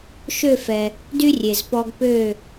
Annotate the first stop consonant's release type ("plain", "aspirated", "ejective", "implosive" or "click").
plain